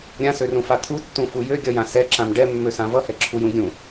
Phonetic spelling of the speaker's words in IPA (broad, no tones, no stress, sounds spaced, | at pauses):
ɾʲ ã s ø r ũ f a t̪ʰ u tː ũ f u j ø ɡʲ ʌ j ã s ɛ ǁ ã m ɖ ɛ mː ø s ã v ʌ h ɛ ǁʰ u j ũ ɡʲ ũ